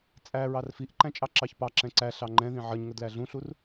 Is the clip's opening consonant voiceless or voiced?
voiceless